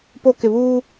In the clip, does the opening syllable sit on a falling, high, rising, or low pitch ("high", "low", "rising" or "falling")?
high